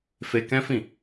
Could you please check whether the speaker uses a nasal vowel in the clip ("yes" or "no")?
yes